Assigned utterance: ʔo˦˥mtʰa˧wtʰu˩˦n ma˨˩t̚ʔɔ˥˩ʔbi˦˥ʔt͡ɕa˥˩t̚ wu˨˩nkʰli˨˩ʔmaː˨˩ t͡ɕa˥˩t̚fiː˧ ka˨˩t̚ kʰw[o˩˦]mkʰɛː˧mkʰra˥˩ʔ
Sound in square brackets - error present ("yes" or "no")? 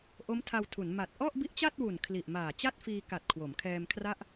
no